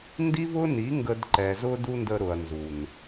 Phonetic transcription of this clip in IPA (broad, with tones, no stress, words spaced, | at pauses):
ndi˦vʊ˦ni˨˦ ŋɡə˧d ǃɛ˨ zʊ˦du˦ndə˧ ɾʊ˨ɐ̯nzu˨n